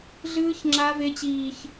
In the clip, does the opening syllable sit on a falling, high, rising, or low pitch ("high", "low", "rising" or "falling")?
high